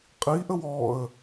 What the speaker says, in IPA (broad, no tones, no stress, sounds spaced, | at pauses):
qʼ i ʔ ə w ɔ ə̯